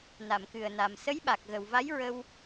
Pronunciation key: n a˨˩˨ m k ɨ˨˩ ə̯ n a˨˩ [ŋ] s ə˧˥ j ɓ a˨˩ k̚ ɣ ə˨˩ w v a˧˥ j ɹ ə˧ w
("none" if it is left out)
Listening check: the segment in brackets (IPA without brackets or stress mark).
m